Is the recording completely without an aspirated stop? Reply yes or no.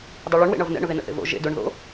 yes